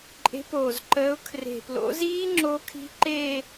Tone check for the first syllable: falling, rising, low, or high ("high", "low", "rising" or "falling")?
rising